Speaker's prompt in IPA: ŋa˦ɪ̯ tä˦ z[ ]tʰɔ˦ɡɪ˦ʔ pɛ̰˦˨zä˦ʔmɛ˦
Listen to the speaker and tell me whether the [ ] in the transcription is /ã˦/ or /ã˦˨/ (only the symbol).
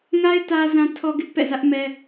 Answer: ã˦